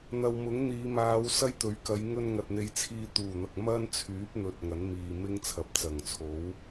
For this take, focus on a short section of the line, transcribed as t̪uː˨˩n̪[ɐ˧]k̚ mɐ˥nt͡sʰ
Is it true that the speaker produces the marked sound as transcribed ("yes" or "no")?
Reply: no